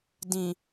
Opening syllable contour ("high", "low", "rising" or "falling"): low